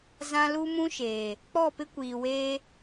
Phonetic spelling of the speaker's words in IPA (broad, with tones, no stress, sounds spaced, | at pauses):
z ã˦ l u˦ m ũ˦ ʃ eː˨ | k͡p ɔ˦˨ p ɪ˦ kʷ iː˨ w eː˦